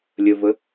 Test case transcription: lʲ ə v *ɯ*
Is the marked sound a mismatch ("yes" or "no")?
yes